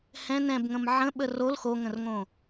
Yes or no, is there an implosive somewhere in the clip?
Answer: yes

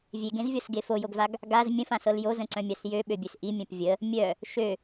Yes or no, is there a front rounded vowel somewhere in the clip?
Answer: yes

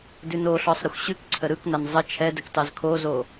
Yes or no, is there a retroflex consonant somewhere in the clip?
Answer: no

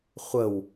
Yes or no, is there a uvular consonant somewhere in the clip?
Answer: yes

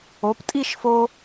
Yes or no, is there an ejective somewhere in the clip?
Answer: yes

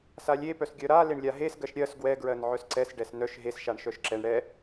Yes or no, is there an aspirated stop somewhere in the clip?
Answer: no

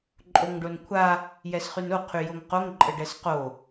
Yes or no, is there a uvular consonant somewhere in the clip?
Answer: yes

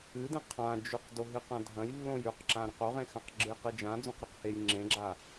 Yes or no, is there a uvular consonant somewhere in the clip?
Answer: yes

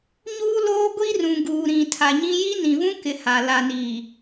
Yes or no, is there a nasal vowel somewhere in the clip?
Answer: yes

